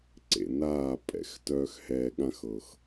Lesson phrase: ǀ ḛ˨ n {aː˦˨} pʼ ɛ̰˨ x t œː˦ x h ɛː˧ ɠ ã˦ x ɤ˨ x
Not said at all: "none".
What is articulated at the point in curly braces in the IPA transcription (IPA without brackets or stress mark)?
aː˦˨